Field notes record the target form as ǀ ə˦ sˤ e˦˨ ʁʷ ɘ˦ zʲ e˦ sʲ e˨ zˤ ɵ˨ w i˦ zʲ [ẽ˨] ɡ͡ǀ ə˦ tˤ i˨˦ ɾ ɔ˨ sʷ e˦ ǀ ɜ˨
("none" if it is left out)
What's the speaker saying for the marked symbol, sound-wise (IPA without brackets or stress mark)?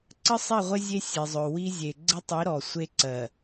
e˨